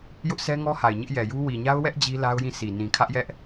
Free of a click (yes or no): yes